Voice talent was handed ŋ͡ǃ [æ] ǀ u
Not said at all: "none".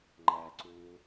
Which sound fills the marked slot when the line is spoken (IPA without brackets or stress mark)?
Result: æ